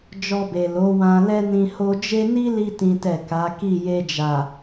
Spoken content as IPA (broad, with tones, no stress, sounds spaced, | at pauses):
d͡ʒ ɔ˧ b e˨ l o˨˦ w ã˧ l ɛ˧ n ĩ˧ h o˧ d͡ʒ e˦ n i˦ l i˧ t ĩ˦ t ɛ˦˨ k a˨˦ k i˦˨ j e˧ d͡ʒ a˨